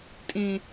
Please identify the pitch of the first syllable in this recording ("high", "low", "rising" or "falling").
low